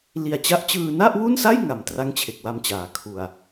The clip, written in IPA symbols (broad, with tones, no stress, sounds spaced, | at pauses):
l i˨˩ a̯ t͡ɕ a˦˥ ʔ t͡ɕ ɯː˧ n a˥˩ ʔ w u˥˩ n s a˥˩ j ŋ a˨˩ m t r a˥˩ ŋ t͡ɕʰ e˨˩ k̚ w a˧ m t͡ɕ aː˩˦ kʰ u˨˩ a̯